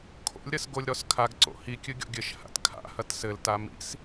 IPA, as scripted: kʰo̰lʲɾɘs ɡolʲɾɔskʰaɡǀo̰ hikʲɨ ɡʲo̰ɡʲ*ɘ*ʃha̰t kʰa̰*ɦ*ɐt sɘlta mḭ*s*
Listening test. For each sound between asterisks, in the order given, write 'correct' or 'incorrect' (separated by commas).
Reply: correct, incorrect, correct